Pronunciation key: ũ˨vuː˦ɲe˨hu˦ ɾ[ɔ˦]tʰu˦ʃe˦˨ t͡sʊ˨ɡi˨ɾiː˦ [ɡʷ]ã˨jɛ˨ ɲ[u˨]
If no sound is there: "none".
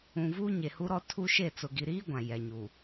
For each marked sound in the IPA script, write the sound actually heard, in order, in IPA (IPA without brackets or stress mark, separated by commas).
ɔ˦, ɡʷ, u˨